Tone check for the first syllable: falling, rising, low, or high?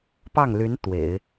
falling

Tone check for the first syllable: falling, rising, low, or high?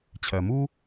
low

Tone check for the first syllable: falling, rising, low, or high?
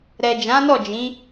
low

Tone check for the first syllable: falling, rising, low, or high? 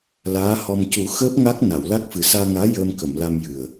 rising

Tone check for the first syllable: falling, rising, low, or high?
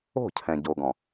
falling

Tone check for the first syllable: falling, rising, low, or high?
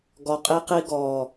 low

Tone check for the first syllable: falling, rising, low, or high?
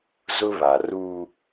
high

